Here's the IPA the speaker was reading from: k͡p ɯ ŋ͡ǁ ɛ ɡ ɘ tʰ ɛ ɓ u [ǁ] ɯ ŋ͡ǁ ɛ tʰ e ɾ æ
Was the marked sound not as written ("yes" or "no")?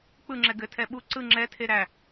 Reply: yes